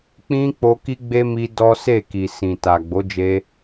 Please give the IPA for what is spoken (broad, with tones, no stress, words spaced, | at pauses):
k͡pĩ˦k͡po˧ki˦ɡ͡be˦ mi˦ dɔ˦ se˦˨ki˨sĩ˨ ta˨ɡ͡bo˨˦d͡ʒe˧